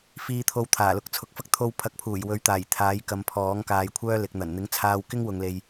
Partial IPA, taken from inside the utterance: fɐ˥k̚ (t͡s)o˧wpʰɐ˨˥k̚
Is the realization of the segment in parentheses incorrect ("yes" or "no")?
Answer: yes